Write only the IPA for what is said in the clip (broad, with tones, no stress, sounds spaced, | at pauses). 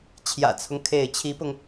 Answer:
t͡ɕʰ j ä̰˨˩ t͡sʰ ʊ˦ ŋ kʰ e˥˩ ɪ̯ t͡ɕʰ i˧˥ p ʊ˧ ŋ